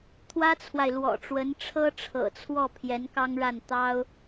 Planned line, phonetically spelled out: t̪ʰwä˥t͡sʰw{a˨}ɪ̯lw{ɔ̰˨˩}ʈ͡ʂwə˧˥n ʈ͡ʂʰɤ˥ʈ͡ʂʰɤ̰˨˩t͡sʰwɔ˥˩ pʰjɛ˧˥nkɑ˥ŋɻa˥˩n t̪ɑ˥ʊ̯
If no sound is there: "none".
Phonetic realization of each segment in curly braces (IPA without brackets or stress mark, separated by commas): a˨, ɔ̰˨˩